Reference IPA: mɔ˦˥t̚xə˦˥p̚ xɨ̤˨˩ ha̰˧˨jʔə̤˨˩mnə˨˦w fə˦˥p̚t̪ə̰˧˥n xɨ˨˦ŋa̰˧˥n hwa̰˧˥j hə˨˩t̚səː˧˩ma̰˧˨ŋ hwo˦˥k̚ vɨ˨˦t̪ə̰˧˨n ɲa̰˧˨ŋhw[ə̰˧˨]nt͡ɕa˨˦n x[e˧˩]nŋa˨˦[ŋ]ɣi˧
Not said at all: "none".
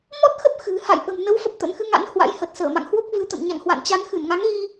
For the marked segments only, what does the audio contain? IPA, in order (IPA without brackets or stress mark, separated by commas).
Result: a̰˧˨, ɨ˧˩, ŋ